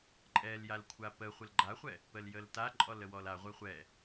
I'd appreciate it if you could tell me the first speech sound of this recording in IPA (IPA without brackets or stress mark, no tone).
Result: ǃʼ